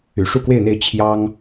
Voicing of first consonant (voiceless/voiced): voiceless